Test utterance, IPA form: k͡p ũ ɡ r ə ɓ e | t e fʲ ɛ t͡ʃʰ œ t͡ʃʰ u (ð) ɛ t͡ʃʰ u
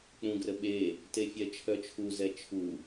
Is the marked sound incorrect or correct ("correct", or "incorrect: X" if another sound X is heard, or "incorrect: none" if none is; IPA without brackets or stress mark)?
incorrect: z